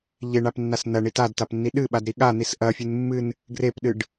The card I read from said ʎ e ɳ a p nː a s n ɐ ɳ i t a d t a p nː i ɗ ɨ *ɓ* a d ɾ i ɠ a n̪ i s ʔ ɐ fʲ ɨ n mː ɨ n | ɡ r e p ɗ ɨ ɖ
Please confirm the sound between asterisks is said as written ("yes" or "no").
yes